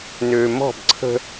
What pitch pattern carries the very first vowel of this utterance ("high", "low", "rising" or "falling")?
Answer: low